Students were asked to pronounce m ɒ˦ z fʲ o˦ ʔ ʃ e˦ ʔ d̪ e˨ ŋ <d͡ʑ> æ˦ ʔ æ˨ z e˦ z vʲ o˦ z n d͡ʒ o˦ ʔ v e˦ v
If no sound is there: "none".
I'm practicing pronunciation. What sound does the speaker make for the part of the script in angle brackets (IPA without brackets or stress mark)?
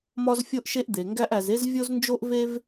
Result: ɡ